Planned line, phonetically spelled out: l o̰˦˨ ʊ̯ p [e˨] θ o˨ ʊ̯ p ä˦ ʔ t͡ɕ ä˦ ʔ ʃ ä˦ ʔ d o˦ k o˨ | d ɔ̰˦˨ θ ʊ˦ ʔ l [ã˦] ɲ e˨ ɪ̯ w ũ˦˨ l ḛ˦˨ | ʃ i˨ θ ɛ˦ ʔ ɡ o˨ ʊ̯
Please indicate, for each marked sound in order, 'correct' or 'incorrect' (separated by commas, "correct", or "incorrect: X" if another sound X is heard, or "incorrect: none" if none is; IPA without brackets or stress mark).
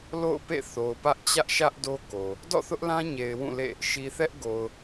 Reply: incorrect: ḛ˦˨, correct